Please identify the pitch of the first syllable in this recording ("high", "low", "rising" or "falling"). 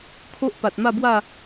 high